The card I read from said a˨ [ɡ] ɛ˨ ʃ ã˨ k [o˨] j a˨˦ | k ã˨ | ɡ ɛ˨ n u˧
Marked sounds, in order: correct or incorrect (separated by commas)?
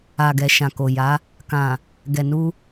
correct, correct